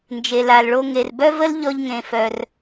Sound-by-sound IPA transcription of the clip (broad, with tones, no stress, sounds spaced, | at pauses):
n d͡ʒ e˩ l a˩ l ɭ o˧ ŋ e˩ r b œ˥ v ə˥ l ʎ ɔ˧ ʎ ŋ ẽ˩ f œ˩ r